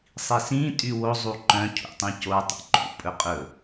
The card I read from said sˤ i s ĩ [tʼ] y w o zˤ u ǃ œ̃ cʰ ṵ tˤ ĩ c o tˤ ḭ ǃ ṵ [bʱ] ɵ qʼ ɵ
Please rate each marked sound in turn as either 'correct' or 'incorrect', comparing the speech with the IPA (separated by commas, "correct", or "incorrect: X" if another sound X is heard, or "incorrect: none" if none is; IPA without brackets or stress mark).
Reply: correct, incorrect: pʼ